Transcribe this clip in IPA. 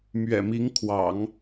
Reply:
mɥɛ̰˨˩mi˧˥ŋ kʰwɑ̰˨˩˦ŋ

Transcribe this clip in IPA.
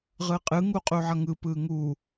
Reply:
ʁɯqʼɯ ŋuqʼuʕʌŋɯ pɯŋu

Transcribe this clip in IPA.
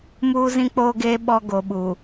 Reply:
muː˦zĩ˦k͡poː˦ɡeː˦ ɓɔ˦ ɡo˨ɓu˨

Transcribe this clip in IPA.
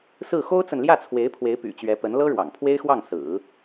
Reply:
sɹ̩˥˩ xo˥ʊ̯t͡sə˨nljä˥˩t͡sʰwe˧˥ɪ̯ pʰwe˧˥ɪ̯py̰˨˩t͡ɕɥɛ˧˥pə˧˥n lɤ˥ɻwɑ̰˨˩ŋ pʰwe˥ɪ̯xwɑ˥˩ŋ sɹ̩˨˩˦

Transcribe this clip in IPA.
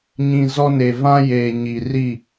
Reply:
ɲĩ˨ zɔ˦ne˨ vã˦jeː˨ ɲi˨ri˦˨

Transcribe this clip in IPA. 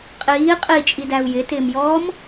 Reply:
qʼiː qʼit͡ʃʼidæu̯ jɪtɪːmjɔːm

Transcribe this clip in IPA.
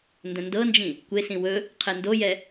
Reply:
ndə̃ndɤnd͡ʒĩ | kʷesĩ wɵ | qʰendojɛ

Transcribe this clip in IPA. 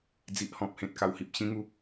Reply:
d͡zi˨ʔhɔ̃˨p̚hẽ˨t̚ ka˨˩whi˨p̚ɕĩ˧ ŋu˧

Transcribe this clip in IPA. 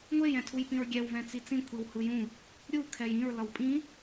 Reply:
ŋʷej ɛ̃tʰujpĩɹɡʲɛw vɛ̃t͡sit͡sĩ kʷʰiwhɯjũ | ɾʲu kʰɛjĩɹ lʌwpʼĩ

